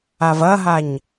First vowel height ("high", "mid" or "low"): low